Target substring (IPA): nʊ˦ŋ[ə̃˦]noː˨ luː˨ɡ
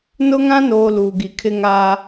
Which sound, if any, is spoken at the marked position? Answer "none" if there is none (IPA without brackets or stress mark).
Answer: ã˦